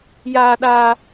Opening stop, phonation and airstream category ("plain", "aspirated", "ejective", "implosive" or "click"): implosive